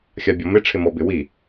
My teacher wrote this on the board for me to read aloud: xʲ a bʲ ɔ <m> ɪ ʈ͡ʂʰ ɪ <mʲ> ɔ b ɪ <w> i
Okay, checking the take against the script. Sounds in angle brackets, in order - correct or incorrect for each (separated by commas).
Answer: correct, incorrect, correct